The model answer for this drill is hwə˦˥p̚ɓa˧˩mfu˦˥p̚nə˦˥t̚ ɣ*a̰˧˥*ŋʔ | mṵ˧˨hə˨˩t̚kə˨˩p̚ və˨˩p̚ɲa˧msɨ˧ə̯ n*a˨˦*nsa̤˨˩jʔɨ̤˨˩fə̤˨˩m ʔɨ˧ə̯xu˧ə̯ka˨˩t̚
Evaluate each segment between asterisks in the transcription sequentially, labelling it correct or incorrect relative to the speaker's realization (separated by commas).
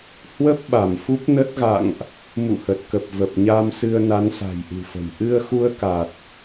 incorrect, correct